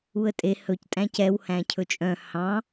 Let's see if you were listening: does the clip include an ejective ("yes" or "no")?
yes